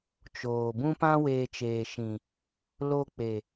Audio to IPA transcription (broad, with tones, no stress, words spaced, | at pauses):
t͡ʃoː˨bũ˦ pã˦weː˧t͡ʃeː˨ʃĩ˨ | lo˧k͡pe˨